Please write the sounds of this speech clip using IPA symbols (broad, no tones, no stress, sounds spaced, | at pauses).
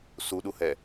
s u ɗ u h ɛ